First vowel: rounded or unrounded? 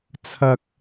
unrounded